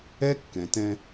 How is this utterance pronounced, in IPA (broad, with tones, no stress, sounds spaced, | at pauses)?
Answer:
ɛ˦ kː ɛ̃˨ t ɛ̃˦